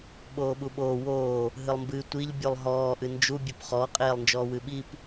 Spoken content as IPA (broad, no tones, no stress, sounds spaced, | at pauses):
ɓ oː ɓ u ɓ oː w oː | ɦ ɨ lˠ m b ɨ tʷ i ʎ bʲ u lˠ ɦ ɔː ʔ ɨ n d͡ʒ u bʲ o p χ ɔ qʼ eː lˠ n d͡ʒ ɔː w ɨ ɓ i p